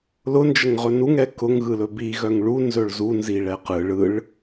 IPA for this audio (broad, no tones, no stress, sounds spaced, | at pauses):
l ʊ n d͡ʒ ə ŋ ʁ ɵ n u ŋ ɛ k ʊ ŋ ɣ ɯ l ɵ b i ɣ œ ŋ ɭ u n z ɵ ɭ z u n z i ɭ ɛ q ɯ ɭ ɯ ɭ